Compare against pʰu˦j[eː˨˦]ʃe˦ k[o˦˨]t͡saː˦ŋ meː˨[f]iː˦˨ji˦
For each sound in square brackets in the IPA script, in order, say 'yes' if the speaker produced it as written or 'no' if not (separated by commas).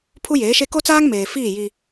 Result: yes, no, yes